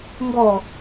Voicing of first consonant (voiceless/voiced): voiced